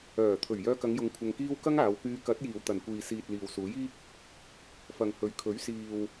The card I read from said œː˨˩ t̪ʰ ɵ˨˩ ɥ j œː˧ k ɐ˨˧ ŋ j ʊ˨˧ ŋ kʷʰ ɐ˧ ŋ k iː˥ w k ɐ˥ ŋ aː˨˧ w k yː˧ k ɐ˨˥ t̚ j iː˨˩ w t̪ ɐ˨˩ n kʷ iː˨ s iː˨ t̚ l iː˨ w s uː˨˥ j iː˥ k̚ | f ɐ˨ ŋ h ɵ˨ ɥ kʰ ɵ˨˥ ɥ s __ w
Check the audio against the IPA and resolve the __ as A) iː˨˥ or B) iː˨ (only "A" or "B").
B